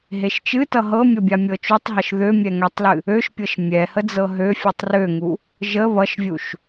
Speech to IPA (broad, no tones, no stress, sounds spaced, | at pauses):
ɦ e ʃ t͡ʃ ɨ t ʌ ɦ ɤ mʲ ʌ bʲ a mʲ ɤ t͡ʃ u tˤ ɦ ɤ ʃ ð ø mʲ ɛ ŋ ɛ tˤ l ɨ | ø ʃ pʲ ɤ ʃ mʲ ɛ h ə d͡z ɤ ɦ ø fʲ u tˤ r ø ŋ u | ʒ ə β ʌ ʃ vʲ u ʃ